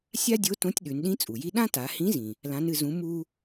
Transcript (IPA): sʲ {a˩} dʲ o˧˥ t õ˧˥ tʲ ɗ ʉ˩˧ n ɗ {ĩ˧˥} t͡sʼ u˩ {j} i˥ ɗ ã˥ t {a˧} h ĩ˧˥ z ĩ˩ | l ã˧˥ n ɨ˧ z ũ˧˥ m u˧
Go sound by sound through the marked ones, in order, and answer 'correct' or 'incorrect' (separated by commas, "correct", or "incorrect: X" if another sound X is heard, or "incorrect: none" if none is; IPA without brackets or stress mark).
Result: incorrect: a˥, correct, correct, incorrect: a˩˧